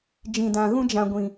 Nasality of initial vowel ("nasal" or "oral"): nasal